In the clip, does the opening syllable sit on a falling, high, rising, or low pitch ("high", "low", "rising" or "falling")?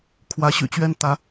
rising